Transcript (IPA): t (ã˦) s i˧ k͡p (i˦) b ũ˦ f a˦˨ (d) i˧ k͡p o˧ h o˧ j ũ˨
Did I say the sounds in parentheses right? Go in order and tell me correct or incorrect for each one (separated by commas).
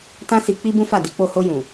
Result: correct, correct, correct